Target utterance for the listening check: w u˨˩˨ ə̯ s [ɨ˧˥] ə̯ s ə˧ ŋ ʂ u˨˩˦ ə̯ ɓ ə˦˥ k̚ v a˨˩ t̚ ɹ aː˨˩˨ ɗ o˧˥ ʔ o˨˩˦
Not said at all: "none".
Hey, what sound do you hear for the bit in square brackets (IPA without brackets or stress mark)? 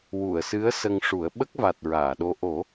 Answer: ɨ˧˥